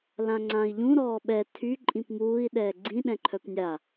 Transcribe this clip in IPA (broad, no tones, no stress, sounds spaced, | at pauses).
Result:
l ã ŋ͡ǀ ã i̯ ʎ ũ ɾ ɔː ɓ ɛ tʰ y ǃʼ ĩ p m uː i̯ ɗ ɛː ɡ͡ǀ ĩ ɗ ɛ̃ ǃʰ œ p nʲ a